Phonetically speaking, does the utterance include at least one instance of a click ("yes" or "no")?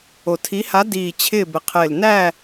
no